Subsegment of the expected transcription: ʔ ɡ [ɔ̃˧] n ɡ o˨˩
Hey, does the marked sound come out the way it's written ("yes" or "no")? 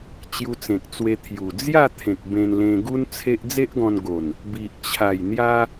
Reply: yes